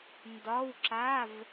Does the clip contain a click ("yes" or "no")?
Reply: yes